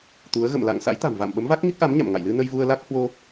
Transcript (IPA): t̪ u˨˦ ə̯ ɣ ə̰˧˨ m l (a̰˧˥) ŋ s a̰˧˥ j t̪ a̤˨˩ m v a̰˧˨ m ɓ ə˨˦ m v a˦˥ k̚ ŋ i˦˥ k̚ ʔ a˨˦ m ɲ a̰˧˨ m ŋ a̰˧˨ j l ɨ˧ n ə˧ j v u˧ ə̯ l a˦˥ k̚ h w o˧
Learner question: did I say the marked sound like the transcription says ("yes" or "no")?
no